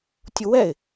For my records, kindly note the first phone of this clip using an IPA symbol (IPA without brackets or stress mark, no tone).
tʲ